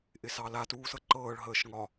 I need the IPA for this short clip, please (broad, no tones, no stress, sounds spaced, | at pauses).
ʔ ɪ s ɑ l a t uː s ɤ ǃ ɤː ɭ ɦ əː ʃ ŋ ɒ